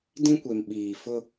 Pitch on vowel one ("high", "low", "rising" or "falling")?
high